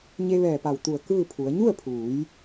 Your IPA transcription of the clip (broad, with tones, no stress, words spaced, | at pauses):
ɲe˧ʋɛː˧˩pa˧˩wt̪u˧˩ə̯ kɯː˥˨pʰu˩˧ə̯ ɲu˥˨ə̯pʰuː˩˧j